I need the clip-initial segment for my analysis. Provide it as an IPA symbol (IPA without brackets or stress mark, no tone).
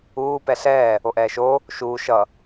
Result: uː